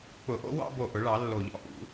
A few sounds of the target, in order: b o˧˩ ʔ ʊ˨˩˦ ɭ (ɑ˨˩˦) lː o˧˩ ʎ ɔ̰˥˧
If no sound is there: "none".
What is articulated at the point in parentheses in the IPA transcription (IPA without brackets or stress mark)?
ɑ˨˩˦